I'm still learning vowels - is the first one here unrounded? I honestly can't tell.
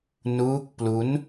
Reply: no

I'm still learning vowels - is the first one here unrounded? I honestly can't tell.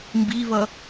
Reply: yes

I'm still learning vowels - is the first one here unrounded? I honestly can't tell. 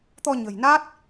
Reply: no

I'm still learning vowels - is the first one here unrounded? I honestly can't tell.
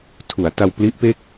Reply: no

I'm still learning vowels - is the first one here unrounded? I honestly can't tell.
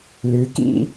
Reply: no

